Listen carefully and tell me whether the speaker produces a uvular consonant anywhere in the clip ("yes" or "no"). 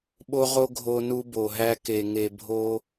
yes